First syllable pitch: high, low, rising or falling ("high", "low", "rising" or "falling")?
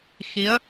rising